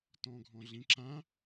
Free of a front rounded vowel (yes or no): yes